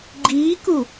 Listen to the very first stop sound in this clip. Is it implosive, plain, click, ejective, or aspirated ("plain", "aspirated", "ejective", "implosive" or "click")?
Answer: click